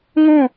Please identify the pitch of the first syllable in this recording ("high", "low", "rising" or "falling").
falling